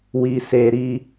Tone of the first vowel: low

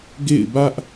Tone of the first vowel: falling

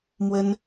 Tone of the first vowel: high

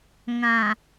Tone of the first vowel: low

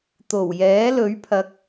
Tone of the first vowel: low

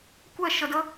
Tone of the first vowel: falling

